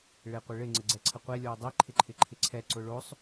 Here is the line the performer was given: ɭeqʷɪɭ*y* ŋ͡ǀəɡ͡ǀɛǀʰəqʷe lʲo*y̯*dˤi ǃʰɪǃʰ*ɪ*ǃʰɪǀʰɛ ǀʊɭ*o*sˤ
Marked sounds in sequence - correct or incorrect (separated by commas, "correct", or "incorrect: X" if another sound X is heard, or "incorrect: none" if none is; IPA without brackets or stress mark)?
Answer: incorrect: ɪ, incorrect: u̯, correct, correct